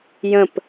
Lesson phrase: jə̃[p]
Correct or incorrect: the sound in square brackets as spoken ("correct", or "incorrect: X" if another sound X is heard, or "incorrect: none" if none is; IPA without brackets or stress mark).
correct